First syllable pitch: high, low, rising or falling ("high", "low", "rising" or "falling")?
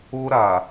high